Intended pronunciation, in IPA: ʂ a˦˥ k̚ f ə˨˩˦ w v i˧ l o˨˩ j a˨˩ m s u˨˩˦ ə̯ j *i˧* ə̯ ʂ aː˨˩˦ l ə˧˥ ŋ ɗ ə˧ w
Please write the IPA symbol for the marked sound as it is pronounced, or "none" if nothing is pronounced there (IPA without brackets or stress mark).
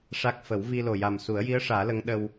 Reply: i˧˥